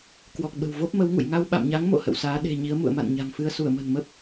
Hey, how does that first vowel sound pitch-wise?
low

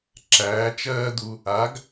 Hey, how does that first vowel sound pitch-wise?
rising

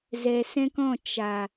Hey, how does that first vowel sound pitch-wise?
low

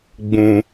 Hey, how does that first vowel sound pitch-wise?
low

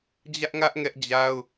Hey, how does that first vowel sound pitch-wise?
high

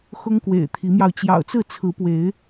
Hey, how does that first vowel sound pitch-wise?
high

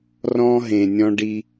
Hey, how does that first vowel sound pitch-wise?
high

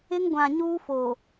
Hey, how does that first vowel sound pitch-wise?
high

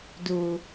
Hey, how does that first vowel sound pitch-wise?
low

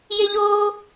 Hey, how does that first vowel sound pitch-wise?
high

